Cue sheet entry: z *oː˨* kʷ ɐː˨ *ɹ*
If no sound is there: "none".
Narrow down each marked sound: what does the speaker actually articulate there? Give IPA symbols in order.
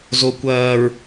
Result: o˨, ɹ

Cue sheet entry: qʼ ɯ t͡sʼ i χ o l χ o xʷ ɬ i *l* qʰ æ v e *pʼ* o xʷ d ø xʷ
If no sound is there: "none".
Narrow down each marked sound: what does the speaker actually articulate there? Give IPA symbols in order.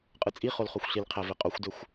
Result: l, qʼ

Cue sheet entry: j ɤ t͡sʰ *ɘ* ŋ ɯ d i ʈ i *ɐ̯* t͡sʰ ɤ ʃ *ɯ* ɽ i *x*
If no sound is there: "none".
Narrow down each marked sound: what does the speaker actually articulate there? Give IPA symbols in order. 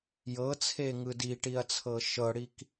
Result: e, ɐ̯, ɤ, k

